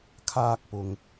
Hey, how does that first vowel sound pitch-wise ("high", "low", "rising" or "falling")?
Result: high